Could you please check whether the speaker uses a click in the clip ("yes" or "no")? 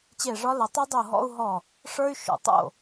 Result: no